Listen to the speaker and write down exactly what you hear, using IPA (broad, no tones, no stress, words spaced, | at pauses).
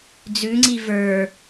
d͡zʉŋ͡ǀi və˞